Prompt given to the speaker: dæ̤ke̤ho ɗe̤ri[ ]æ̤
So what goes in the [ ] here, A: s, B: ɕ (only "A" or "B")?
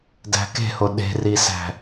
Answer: A